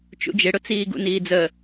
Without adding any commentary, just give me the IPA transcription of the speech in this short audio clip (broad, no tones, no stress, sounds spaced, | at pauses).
t͡ʃ ṵ d͡ʒ ɪ ɽ ʊ t͡s iː ɡ ṵ n iː d͡z ə